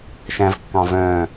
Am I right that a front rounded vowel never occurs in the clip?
no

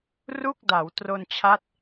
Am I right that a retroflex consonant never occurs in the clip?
yes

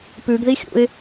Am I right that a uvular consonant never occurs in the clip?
yes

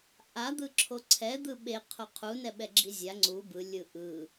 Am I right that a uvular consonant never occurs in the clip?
no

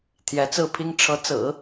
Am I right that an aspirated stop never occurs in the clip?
no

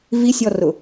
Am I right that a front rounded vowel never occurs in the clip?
yes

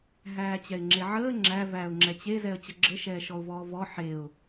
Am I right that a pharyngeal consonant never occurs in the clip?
no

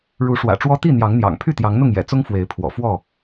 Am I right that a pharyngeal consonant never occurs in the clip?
yes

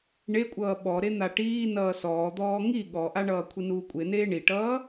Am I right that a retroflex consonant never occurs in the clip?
no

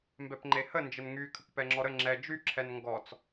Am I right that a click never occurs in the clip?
no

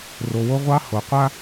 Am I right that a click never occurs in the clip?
yes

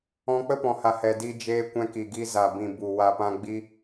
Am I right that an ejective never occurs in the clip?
yes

